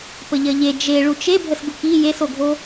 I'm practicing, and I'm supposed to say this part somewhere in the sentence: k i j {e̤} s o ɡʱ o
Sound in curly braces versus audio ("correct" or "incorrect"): incorrect